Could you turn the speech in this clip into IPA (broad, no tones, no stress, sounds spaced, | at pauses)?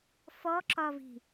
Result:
f ɔ ǁ ɒ v i̤